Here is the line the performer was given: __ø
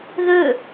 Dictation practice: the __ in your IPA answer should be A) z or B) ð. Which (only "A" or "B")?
B